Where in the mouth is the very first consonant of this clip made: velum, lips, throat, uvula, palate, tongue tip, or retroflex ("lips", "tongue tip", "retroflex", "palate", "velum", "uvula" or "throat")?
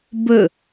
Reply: lips